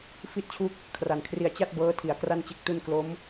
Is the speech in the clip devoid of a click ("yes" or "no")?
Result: yes